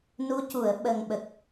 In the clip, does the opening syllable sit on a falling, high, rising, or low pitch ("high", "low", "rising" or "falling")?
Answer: rising